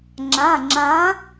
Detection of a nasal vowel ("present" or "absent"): present